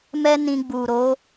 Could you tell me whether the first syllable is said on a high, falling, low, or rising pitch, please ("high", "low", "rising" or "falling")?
high